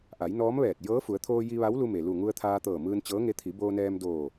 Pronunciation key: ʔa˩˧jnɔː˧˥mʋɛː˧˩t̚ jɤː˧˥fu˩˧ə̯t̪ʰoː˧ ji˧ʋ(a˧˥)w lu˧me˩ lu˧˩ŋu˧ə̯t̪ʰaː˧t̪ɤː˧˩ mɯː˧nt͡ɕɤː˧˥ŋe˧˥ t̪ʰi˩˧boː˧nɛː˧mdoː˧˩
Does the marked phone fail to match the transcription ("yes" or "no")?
no